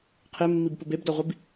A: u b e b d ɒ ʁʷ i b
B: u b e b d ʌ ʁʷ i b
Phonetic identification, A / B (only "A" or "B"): A